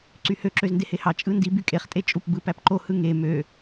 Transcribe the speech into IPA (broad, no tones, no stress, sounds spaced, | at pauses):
ǀ y h ø ǁ ø z n d e h e h ɑ t͡ʃʼ ɯ n d i b y kʼ e χ tʼ e t͡ʃʼ u p b ɯ p æ p ǃ o h ɯ ŋ e m ø